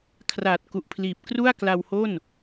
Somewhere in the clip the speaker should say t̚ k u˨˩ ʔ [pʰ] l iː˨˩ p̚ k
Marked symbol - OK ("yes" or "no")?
yes